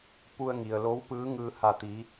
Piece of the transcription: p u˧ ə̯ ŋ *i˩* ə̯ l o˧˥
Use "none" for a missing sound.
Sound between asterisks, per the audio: i˩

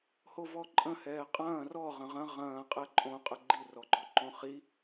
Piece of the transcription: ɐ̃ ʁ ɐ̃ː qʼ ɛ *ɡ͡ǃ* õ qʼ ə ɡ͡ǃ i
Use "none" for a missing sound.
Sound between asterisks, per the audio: ǃʼ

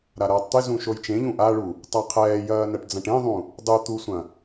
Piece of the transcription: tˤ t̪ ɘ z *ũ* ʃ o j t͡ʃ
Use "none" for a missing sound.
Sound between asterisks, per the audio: ũ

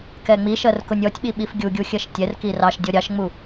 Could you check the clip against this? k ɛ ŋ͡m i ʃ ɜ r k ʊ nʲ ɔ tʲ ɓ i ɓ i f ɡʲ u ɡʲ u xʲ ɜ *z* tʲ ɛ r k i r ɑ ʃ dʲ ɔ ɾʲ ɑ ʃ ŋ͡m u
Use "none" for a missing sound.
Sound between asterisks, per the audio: ʃ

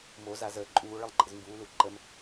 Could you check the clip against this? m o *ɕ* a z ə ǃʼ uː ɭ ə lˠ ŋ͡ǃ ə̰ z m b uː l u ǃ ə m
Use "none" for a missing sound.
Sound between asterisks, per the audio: z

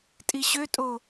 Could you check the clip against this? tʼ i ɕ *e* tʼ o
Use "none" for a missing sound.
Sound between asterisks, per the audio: ø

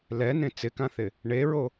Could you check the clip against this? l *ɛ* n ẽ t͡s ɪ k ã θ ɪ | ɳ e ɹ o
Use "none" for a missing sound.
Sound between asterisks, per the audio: ɛ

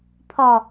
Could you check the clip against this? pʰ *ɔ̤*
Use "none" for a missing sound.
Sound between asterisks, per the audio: ɔ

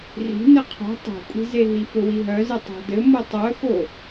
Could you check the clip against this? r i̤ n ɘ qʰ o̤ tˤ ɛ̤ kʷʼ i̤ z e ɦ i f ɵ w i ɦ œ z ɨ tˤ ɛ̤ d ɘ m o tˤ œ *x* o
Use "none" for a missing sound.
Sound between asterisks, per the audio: x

